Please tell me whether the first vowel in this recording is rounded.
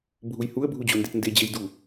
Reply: yes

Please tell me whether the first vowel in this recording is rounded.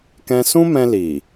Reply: no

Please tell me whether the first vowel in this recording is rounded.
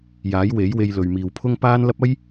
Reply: no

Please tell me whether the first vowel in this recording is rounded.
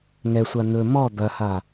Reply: no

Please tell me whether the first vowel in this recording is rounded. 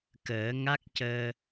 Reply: no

